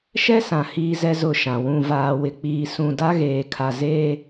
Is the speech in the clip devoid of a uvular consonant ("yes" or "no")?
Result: yes